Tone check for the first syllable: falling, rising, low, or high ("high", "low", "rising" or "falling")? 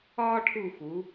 high